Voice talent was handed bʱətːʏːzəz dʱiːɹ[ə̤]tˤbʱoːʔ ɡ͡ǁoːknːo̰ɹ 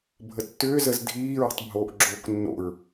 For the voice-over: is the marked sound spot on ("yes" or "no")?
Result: yes